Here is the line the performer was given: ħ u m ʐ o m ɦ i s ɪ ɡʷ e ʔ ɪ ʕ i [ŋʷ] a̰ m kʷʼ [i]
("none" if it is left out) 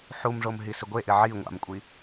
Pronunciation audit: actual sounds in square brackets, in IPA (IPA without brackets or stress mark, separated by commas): ŋʷ, i